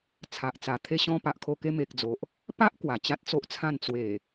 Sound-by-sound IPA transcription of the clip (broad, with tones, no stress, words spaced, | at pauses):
t͡sʰa˨ʔt͡sa˨˩ t̪ʰe˧ɕɔ̃˧ pa˨ʔkʰo˧ke˧ me˨k̚d͡zo˨ʔ | pa˦ʔ kwa˨˩t͡ɕa˦t̚t͡so˦ʔt͡sʰã˥˧n t͡swe˨˩